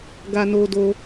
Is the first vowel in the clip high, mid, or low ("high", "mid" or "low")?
low